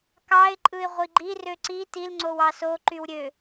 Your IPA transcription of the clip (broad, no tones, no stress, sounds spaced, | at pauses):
k ɑ ɪ̯ ǃʼ ɯ ɪ̯ ʁʷ i ɡ͡ǃ i r ø ǀ i t i l ŋ͡ǀ o w ɑ s o ǃ y w ɾʲ ø